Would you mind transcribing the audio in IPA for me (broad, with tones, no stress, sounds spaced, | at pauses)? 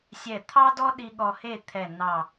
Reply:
sʲ ɛ˧˩ t̪ʰ ɑ˥ d ɔ˥ ɗ i˥ ɠ ɔ˧ h e˥˧ t̪ʰ ɛ˧˩ n ɑ˧˩